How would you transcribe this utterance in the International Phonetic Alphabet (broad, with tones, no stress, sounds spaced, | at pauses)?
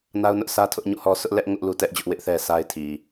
n a˦ ʊ̯ n ʊ˦ ʔ sʰ ä˦ tʰ ʊ˦ ʔ ɲ ṵ˦˨ h ɔ˦ s ʊ˦ ʔ l ɛ˦ ʔ ŋ ʊ˦ ʔ l u˦ t ɛ˦ ʔ d͡ʑ ʊ˦ ʔ w ɪ˦ ʔ θ ɛ˦ s a˦ ɪ̯ tʰ i˨